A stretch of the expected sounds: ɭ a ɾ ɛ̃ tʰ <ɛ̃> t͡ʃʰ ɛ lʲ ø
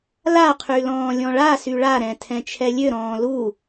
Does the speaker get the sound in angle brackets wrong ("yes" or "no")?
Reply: no